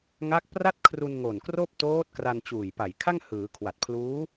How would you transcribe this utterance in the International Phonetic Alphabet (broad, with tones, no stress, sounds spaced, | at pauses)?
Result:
ŋ a˦˥ k̚ p r a˥˩ t̚ kʰ r u˧ n ŋ o˨˩ n k r oː˥˩ p̚ t oː˦˥ t̚ k r a˧ n t͡ɕ uː˨˩ j p a˨˩ j kʰ a˥˩ ŋ h ɯː˩˦ kʰ w a˨˩ t̚ pʰ l uː˦˥